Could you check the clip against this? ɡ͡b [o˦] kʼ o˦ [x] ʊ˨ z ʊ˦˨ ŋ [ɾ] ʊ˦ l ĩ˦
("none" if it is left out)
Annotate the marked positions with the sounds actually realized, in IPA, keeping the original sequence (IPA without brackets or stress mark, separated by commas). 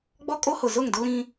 ɔ˦, h, d